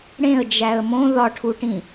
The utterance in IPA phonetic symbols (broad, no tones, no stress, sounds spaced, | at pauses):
ɽ ẽ ə̯ d͡ʒ æ ə̯ m õ ð ɒ ʈʰ u ʈ ĩ